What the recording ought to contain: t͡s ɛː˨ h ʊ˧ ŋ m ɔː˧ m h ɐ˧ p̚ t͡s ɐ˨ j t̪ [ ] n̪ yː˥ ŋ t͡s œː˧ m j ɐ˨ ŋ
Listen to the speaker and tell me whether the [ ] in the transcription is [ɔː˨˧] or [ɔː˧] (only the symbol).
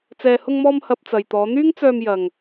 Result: ɔː˨˧